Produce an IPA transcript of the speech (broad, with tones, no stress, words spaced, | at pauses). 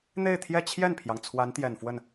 n̪e˥˧ɪ̯t̪ʰjɛ˥˧ t͡ɕʰjɛ˥˩npʰjɑ˩ŋ t͡sʰwa˧˥nt̪jɛ˨˩nfwə˥˩n